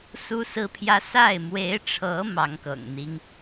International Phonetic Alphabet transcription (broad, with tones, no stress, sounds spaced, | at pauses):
s u˦ s ɹ̩˦ pʰ j ä˦ s a˥˨ ɪ̯ m w e˨˦ ɪ̯ ʈ͡ʂʰ ɤ˨˦ m ɑ˨˦ ŋ k ɤ̰˨˩ ŋ n̪ i˦ ŋ